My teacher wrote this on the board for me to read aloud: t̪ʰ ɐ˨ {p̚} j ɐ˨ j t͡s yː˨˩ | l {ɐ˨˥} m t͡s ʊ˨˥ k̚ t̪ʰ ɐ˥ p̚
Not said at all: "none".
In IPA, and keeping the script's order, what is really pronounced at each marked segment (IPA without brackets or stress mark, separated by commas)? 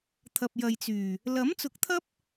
p̚, ɐ˨˥